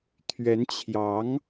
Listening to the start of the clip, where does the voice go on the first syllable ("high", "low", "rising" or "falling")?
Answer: rising